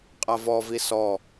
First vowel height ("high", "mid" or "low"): low